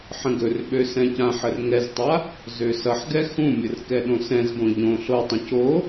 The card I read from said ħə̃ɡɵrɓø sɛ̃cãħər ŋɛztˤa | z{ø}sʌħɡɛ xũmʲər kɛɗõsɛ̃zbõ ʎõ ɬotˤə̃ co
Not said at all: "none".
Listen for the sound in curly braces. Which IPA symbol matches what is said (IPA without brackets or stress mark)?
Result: ø